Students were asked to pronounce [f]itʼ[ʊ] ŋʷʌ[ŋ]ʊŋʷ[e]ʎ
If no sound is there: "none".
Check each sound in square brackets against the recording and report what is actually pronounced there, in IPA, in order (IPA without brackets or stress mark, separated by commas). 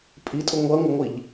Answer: pʼ, ʊ, ŋ, i